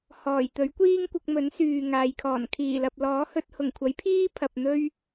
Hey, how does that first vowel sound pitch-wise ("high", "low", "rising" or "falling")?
low